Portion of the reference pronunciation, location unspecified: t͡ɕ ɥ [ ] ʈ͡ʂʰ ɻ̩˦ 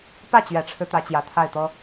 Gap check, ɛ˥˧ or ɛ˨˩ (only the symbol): ɛ˨˩